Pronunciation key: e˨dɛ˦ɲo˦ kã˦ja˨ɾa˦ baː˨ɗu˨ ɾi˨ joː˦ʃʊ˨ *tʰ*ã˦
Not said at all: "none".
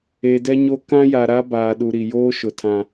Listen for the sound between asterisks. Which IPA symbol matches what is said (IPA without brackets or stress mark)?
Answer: tʰ